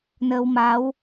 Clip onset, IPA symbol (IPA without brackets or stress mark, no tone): n